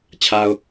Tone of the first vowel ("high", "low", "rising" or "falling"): low